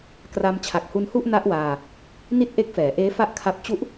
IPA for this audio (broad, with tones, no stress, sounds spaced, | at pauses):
k r a˧ m t͡ɕʰ a˨˩ k̚ h u˧ n h u˥˩ ʔ n a˦˥ ʔ w aː˧ | n i˥˩ t̚ ʔ e˦˥ k̚ f ɛː˩˦ ʔ eː˦˥ f a˦˥ ʔ kʰ a˦˥ p̚ t͡ɕ u˦˥ ʔ